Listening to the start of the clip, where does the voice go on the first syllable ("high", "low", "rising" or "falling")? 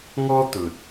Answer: high